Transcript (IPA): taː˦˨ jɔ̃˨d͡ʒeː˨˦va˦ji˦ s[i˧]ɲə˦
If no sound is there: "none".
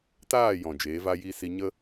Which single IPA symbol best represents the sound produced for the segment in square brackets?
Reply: i˧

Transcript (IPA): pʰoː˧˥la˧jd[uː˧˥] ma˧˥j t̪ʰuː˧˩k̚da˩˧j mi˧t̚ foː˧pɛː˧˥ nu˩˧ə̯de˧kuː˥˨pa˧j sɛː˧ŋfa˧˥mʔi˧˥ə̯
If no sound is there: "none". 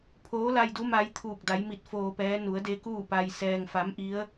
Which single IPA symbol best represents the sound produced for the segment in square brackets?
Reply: u˧˥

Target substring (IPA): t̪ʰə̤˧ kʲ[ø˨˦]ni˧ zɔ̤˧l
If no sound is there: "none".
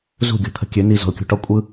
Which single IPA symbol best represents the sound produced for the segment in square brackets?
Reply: ø˨˦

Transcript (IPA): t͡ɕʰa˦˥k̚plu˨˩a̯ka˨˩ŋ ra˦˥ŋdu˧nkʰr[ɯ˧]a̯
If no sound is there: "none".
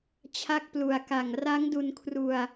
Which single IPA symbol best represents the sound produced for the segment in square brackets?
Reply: u˧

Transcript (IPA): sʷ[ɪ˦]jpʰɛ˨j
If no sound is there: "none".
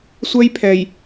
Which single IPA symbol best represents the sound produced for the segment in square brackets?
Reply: ɛ˦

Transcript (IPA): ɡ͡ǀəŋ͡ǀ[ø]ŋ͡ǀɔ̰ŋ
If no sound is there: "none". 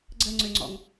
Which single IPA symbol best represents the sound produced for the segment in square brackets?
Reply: ø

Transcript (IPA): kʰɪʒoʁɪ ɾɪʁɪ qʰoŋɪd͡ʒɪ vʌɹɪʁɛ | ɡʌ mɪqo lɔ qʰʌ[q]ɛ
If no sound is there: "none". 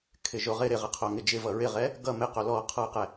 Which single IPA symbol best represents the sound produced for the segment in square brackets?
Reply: q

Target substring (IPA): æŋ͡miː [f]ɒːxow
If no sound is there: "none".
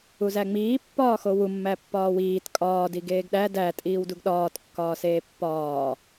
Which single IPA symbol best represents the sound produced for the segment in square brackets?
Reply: pː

